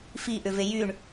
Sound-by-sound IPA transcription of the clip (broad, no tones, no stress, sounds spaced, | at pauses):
f i ʔ ʏ v e j y ɳ